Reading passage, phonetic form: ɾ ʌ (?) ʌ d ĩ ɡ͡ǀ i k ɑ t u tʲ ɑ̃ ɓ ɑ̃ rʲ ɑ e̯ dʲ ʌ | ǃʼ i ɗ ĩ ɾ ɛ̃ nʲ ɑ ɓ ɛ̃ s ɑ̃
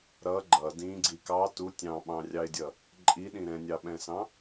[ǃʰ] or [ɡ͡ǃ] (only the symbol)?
ɡ͡ǃ